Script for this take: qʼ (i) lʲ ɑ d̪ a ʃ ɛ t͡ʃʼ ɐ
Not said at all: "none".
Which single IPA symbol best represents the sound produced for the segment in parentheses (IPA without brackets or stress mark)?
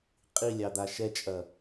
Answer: i